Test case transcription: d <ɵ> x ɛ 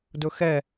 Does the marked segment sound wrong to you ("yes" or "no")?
no